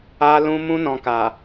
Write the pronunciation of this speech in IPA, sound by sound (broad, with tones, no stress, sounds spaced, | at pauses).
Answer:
a˧ l ũ˧ m ũ˧ n ɔ̃˨ k a˨